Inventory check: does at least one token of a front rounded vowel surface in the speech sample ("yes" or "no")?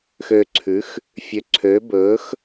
yes